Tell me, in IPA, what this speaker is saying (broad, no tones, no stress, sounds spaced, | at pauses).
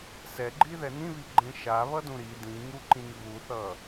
s ɛ ɡ͡ǃ i ð ɛ n ĩ β i ɡ͡ǃ ẽ ʃ a β ʌ d ũ ɾ i d ĩ ŋ u ǃ ĩ ŋ β u θ ʌ